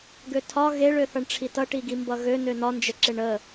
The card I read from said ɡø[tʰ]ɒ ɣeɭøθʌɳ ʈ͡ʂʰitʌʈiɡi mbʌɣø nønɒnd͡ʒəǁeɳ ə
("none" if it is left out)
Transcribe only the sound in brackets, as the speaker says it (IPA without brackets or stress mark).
tʰ